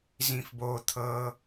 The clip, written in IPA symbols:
z ĩ f b o t̪ʰ ɤ

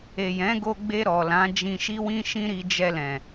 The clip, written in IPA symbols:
e˨ j ɛ̃˨˦ ɡ o˧ ɡ͡b e˧ ɾ ɔ˨ l ã˨˦ d͡ʒ ĩ˧ ʃ i˦ w ĩ˦ ʃ ĩ˦ ɾ i˧ d͡ʒ ɛ˧ l ɛ̃˨

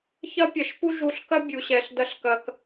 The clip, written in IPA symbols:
ç ɐ˦ pʲ ɐ˨ ʃ p u˦ ʒ u˧ ɬ k ɐ˦ bʲ u˨ ɕ ɛ˨ ɬ d ɐ˧ ɬ k ɐ˨ k

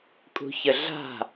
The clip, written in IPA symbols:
kʼ ṳ ç ə ɮ a̤

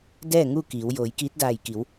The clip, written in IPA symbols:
d ɛː˥˨ ŋ u˥˨ k iː˩˧ w j oː˩˧ j k iː˧˥ t̚ d aː˧˩ j k i˩˧ w

